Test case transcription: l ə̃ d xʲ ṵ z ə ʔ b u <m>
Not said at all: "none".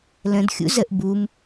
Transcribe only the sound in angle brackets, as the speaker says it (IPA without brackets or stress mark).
m